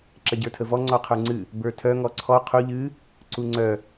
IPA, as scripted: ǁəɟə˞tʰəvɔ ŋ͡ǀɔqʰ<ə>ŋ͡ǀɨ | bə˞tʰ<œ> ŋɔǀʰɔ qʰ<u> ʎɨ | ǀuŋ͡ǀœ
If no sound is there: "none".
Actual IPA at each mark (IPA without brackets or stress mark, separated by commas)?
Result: ə˞, œ, u